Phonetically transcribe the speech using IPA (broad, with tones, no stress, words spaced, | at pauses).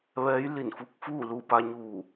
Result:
ʋɛː˧˥jli˧˩nfu˧˥k̚fuː˥˨ lu˧˩pa˧ɲuː˧˩